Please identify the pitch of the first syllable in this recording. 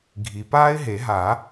low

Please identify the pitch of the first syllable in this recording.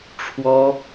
high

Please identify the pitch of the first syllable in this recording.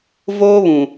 high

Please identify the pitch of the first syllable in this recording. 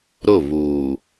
falling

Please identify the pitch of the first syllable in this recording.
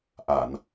low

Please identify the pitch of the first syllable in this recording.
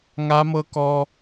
high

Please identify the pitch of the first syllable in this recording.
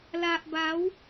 low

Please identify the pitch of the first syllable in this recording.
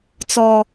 high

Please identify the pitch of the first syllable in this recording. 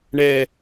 low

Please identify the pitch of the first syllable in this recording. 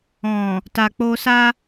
low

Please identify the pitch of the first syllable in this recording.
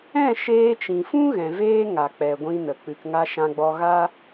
falling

